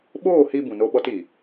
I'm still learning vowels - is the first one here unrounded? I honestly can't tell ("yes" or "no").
no